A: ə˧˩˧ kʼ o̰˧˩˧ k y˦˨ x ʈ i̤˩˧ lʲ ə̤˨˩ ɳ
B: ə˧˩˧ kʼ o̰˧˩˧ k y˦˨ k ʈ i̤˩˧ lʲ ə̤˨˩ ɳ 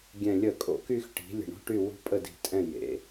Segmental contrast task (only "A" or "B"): A